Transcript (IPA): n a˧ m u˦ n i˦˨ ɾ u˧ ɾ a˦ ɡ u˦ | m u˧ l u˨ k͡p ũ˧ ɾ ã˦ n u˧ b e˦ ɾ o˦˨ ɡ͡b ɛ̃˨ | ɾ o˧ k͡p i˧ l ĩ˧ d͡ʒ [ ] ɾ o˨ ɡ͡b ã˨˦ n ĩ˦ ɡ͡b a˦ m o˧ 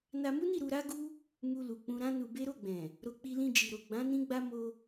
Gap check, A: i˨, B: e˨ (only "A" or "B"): A